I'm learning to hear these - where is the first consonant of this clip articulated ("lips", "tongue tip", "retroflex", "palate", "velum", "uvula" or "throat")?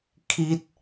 velum